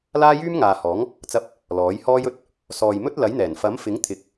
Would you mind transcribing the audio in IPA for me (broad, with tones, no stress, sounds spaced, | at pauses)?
l aː˥ j yː˥ m ŋ aː˨ h ɔː˨˥ ŋ | t͡s ɐ˧ p̚ | l ɔː˨˥ j h ɔː˥ j ɵ˨ t̚ | s ɔː˨ j m ɵ˥ t̚ l ɐ˨˥ j n̪ ɛː˨˩ n f ɐ˨˥ m f ɪ˨˥ ŋ t̪ʰ ɪ˨˥ k̚